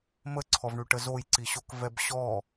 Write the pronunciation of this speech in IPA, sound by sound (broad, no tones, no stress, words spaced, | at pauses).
məǀʰɔvɳyʈə zojǀiɕokvɛb ɕɔ